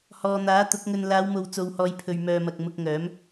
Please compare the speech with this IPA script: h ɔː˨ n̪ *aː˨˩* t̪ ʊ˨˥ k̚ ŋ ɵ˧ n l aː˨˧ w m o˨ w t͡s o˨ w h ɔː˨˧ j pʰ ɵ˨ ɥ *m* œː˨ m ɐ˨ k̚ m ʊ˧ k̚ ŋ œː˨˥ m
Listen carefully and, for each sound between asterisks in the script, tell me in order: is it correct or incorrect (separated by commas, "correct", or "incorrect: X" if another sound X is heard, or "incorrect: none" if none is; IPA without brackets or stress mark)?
incorrect: aː˨˥, correct